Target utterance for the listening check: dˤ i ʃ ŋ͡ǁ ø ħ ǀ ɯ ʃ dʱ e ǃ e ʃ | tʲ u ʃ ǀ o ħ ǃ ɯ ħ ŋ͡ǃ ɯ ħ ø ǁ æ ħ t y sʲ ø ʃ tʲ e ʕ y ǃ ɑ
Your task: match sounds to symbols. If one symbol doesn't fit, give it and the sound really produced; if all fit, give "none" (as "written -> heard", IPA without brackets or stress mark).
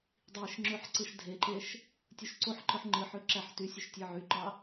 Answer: none